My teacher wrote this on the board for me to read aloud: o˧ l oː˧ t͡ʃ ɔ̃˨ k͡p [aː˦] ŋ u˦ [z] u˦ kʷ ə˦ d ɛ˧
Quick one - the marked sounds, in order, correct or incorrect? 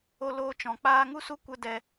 correct, incorrect

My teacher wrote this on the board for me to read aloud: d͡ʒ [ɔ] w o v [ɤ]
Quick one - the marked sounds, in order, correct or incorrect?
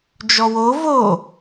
correct, incorrect

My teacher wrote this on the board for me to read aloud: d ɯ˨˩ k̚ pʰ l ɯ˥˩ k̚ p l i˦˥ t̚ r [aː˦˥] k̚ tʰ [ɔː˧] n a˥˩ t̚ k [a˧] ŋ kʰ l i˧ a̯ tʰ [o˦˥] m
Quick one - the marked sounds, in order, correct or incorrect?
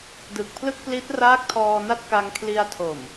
correct, correct, correct, incorrect

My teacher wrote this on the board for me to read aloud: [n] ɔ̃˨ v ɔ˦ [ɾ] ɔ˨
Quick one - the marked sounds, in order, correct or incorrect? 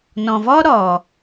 correct, correct

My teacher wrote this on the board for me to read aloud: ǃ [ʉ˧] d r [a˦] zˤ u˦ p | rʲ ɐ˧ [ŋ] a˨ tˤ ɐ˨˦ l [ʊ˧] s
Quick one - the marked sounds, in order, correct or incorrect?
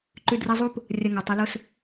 correct, incorrect, correct, correct

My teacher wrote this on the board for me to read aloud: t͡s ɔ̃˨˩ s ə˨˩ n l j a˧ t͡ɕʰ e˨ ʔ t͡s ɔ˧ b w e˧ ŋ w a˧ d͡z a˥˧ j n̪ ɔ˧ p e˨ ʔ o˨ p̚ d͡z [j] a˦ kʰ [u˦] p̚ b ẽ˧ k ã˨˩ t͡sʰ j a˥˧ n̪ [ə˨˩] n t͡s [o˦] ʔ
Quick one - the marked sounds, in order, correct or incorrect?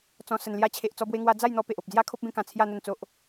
correct, incorrect, incorrect, correct

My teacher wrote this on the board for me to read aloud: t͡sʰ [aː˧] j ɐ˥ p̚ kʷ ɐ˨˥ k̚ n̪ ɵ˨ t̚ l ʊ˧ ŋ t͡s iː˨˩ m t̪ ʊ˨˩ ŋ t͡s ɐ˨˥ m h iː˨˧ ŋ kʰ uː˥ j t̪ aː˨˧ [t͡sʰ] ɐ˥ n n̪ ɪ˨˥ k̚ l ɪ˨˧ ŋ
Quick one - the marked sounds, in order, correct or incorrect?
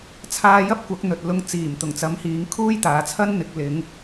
correct, correct

